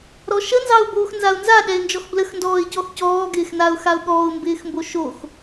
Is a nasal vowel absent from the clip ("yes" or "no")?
yes